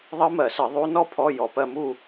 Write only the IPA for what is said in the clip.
ðˤɜ˦˥mɜ˧˩˧sə˧˩˧ ðˤu˦˥ nɔ˥˧pʰɔ˧˥˧ jɔ˧˩pɜ˥˧mu˥˧

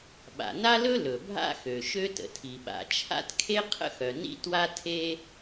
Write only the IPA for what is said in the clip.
ɓa̰˩na˥lɵ˥ lɵ˩bʱa̰˥xø˩ ʃø˥tə̰˩tʰi˩ ɓa̰˩t͡ʃʰa̰˥tkʰe˥ qʰə̰˥xœ˩nḭ˥ twa˥tʰe˥

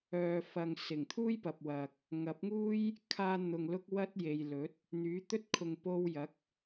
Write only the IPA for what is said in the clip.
œː˨fɐ˨ŋ sɪ˨˩ŋt̪ʰuː˥jpɐ˨p̚ wɐ˨k̚ | ŋɐ˨˥p̚ŋuː˥j | kʰaː˧ n̪ʊ˨ŋ lʊ˥k̚wɐ˥t̚ je˨jlɵ˨˥t̚ | n̪yː˨˥t̪ɵ˥t̚ kʰʊ˨ŋpo˧wjɐ˨˥k̚

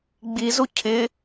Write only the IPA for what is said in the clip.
ɡ͡bizu cʰɪ

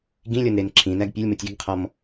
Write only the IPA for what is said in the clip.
ɡĩlʲɔnɾen ǁʰĩnæɡ pʲolʲmotʲ iɡqʰɔm

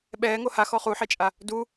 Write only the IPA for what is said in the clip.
ɓɛːŋo haxɔ χuħɛt͡ʃʼa | du

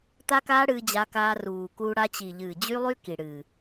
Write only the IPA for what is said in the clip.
t̪a˦kaː˦ ɽɨː˧d͡ʑa˧kaː˧ ruː˨kuː˧ ɽa˧t͡ɕi˨ʎɨː˨ d͡ʑy˦lˠy˦ ki˨ ɽɨ˨

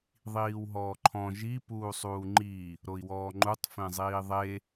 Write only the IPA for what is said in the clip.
ðˤiːwɦɔːǃʰɔ̃ ʒi puːsˤuːŋ͡ǃi | ɾoi̯wɔːŋ͡ǃutˤ fẽzˤiːðˤe

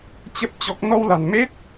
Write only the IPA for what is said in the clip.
t͡ɕə˦˥p̚ t͡ɕɔ˦˥k̚ nɔ˧wla̤˨˩nme˦˥t̚

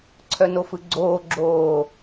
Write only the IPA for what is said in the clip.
ǀʰœnofɯɡ͡ǀoː ɡ͡ǁoː

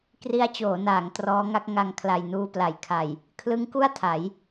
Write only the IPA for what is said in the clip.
kri˦˥a̯t͡ɕoː˩˦naː˩˦ŋ trɔː˦˥ŋa˦˥k̚ ŋa˧ŋkʰla˨˩j nuː˧pla˩˦j kʰa˨˩j | kʰlɯ˦˥ŋku˥˩a̯ tʰa˩˦j

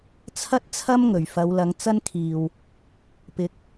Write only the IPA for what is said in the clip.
t͡sʰɐ˥t̚ t͡sʰɐ˥mŋɵ˨˩ɥ fɐ˨˧wlɐ˨˧ŋt͡sɐ˥nkʰiː˨w | pɪ˨˥k̚

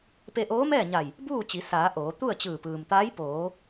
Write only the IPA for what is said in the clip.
pe˧ʔoː˧˥mɛː˥˨ɲa˧˩j | buː˥˨ t͡ɕi˩˧ saː˩˧ ʔoː˩˧ t̪u˥˨ə̯t͡ɕɯː˧˩pɯː˩mt̪aː˧˥j poː˩˧

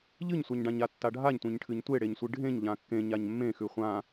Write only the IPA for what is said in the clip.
ʎɨɲsʷaɲɖãɲa tːaɖʱaɲtʷẽɲ ʈʰɨɲtʷeɽeɲsʷɨ ɖʱẽɲ ʎãkːẽ ɲaɲmːẽ xʉχʷã

